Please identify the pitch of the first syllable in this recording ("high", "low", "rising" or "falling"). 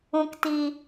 low